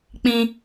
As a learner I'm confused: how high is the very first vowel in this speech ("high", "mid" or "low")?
high